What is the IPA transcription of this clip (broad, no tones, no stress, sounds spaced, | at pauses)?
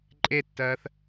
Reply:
ǃʼ e tː ɜː θ